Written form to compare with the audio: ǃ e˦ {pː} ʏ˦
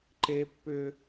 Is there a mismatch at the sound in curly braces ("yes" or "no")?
no